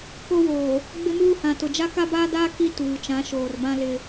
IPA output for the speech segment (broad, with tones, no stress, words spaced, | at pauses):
ko˦woː˨ | ɡ͡bɪ˦muː˦hã˨tʊ˨ d͡ʒa˦ka˦baː˦daː˦ ki˦ tuː˨ t͡ʃã˨˦ʃoː˨rbã˦ lɪ˦